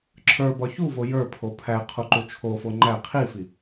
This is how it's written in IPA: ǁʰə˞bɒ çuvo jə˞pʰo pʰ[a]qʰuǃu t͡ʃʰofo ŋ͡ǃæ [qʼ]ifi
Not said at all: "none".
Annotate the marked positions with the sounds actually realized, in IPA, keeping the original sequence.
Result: æ, qʰ

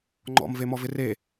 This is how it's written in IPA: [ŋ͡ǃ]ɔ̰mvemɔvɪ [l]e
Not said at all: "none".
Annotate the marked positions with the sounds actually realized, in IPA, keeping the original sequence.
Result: ŋ͡ǃ, r

